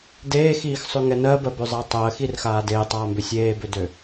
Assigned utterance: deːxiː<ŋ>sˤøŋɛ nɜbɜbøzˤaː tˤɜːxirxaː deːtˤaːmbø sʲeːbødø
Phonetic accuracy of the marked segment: incorrect: x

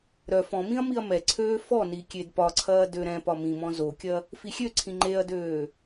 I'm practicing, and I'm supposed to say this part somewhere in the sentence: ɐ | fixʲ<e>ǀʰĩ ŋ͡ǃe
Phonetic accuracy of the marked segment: incorrect: ø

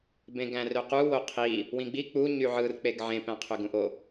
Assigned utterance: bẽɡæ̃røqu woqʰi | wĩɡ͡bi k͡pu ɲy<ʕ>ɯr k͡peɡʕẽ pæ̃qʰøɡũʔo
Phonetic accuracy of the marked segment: correct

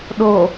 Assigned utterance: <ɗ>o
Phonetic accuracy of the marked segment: correct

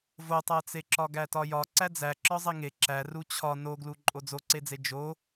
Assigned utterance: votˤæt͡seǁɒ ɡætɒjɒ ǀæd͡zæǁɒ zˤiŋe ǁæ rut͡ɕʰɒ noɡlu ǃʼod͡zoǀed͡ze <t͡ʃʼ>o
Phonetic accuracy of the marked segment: incorrect: d͡ʒ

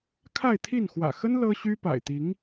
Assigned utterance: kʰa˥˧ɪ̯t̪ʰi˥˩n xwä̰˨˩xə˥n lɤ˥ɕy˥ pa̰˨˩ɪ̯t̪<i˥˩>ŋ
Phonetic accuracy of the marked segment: incorrect: i˧˥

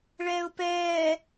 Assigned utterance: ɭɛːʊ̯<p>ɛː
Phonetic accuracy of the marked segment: correct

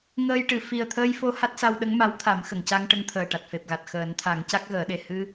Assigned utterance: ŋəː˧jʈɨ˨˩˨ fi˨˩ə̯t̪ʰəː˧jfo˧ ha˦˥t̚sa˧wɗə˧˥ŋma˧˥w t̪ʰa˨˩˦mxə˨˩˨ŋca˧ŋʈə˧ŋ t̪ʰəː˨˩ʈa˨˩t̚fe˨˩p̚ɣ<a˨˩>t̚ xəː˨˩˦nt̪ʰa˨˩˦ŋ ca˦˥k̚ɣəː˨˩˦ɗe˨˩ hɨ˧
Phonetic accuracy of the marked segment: correct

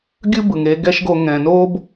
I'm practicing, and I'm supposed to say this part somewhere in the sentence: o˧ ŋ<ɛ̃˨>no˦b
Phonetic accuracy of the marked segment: correct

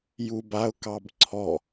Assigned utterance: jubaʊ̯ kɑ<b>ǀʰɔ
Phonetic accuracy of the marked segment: correct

